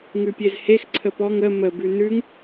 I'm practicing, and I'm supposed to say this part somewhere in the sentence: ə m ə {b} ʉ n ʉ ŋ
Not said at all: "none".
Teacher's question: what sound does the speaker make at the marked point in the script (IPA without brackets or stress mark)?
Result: b